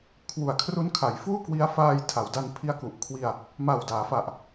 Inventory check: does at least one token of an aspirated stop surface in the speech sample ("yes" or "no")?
yes